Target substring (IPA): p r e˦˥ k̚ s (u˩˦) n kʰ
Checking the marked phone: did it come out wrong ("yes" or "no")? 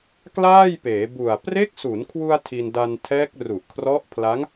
no